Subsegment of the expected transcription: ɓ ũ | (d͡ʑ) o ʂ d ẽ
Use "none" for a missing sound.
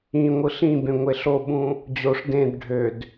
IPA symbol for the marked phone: d͡ʑ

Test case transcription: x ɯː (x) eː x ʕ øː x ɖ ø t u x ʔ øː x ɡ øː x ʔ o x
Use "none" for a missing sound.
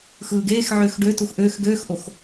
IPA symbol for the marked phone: ɡ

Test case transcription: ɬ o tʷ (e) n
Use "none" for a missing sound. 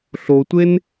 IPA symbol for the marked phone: e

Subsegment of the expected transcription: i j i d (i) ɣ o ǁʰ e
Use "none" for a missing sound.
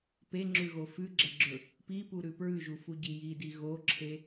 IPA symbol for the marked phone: i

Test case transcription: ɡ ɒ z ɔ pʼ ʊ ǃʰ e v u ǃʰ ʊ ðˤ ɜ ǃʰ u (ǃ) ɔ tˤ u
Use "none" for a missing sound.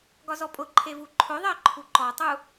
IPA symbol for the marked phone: ǃ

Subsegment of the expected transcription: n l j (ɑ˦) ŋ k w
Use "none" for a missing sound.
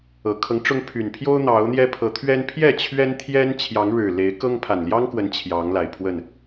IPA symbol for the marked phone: ɑ˦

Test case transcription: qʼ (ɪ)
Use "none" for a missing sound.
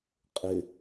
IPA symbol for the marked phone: ɪ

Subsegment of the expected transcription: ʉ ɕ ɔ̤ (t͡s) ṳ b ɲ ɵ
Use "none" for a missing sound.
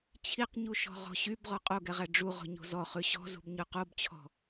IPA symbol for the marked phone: z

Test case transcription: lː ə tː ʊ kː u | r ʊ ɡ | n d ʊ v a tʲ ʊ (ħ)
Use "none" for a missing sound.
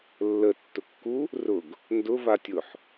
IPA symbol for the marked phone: ħ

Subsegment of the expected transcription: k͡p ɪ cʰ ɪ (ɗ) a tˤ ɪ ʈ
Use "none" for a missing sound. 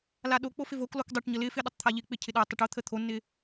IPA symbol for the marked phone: ɗ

